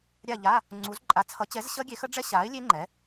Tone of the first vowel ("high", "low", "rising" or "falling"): falling